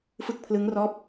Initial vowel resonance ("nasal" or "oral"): oral